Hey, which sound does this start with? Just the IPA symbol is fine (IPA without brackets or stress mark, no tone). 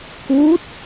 k